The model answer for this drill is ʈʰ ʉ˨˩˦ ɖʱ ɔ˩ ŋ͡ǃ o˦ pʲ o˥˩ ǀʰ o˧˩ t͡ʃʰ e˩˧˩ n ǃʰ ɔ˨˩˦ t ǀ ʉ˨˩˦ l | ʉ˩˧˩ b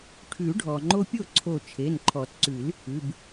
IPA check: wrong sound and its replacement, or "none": none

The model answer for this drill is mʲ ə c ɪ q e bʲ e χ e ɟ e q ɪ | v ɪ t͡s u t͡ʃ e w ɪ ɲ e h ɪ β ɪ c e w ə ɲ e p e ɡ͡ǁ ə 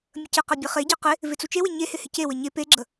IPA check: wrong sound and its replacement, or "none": β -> h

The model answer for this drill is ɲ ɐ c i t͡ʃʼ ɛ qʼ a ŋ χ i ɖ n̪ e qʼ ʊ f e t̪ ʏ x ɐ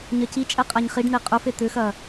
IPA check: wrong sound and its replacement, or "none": ŋ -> ɲ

